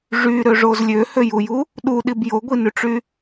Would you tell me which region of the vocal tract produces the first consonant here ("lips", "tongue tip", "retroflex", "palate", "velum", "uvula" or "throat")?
retroflex